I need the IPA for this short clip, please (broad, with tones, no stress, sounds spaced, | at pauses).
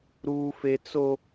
ɾ uː˦ f e˦ t͡s o˦